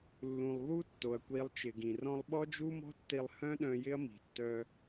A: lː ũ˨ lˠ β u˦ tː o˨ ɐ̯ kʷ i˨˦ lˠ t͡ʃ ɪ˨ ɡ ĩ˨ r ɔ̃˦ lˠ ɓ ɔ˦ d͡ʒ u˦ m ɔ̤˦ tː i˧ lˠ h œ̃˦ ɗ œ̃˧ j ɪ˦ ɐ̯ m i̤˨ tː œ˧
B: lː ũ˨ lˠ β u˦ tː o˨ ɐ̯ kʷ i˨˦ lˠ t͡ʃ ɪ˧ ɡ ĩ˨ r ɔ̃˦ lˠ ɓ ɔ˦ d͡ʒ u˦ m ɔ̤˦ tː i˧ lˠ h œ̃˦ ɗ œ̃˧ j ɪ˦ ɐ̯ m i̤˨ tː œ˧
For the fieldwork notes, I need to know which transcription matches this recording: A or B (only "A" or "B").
A